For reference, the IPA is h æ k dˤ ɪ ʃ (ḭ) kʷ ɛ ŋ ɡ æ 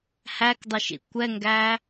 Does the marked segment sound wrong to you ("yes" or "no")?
no